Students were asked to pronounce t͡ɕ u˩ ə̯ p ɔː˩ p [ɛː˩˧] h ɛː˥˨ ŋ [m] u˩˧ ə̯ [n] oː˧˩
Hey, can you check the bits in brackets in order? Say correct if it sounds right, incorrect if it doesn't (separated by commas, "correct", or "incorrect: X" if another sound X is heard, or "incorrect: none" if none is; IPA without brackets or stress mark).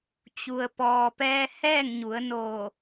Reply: incorrect: ɛː˧, incorrect: ɲ, correct